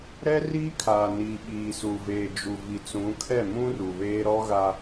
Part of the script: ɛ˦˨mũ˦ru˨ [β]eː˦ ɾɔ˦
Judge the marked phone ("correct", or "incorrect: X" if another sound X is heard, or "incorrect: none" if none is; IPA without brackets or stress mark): correct